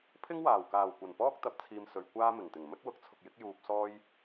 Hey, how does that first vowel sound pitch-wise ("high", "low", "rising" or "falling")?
high